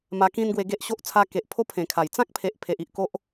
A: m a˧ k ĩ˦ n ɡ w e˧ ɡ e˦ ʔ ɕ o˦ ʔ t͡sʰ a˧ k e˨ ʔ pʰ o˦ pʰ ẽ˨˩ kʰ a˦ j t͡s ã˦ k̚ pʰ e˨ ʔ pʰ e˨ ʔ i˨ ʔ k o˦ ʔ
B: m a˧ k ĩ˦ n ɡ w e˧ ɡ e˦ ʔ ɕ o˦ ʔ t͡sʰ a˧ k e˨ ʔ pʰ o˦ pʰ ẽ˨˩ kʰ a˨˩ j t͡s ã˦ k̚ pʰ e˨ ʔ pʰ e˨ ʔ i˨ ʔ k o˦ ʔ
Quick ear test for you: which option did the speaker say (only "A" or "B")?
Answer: B